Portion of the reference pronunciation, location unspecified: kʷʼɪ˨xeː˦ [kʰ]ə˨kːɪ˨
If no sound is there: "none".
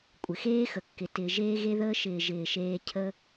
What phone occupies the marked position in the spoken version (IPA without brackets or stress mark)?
x